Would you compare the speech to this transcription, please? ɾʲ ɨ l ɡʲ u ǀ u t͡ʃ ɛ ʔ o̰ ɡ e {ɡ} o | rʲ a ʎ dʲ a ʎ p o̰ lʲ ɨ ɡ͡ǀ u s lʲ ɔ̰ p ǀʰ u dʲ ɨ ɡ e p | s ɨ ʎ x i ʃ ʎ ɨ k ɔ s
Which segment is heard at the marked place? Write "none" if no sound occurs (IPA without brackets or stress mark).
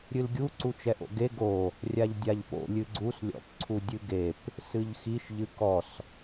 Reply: ɡ